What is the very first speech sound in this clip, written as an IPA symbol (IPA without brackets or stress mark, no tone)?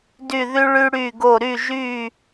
d